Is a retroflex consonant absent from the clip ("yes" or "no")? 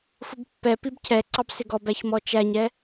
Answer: yes